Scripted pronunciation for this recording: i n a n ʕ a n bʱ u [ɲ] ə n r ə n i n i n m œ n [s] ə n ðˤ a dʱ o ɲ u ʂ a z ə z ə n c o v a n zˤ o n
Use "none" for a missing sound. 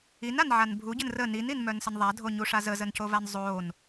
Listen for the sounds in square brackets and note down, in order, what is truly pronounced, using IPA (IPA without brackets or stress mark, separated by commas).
ɟ, s